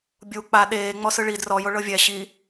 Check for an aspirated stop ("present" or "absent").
absent